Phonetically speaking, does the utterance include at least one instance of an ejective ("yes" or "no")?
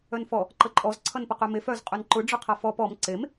yes